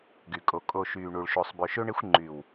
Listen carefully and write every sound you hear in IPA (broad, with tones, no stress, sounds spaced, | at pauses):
ɡ y˨ kʼ o˨ kʼ o˨ ʃ yː˨ ɳ u˨ ɭ ʃ o˨ sˤ b ø˨ ʃ ø˦ ɳ e˦ xʷ ŋ͡ǃ y˨ w